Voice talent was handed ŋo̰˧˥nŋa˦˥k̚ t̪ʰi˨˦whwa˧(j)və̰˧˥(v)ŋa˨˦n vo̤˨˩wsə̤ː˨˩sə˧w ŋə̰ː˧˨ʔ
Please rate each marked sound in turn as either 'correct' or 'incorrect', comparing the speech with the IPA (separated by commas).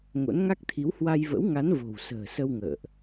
correct, incorrect